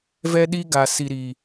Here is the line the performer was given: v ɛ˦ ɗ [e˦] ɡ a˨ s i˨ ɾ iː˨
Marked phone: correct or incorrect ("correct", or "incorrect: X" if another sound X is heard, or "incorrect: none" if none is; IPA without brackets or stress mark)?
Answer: incorrect: i˦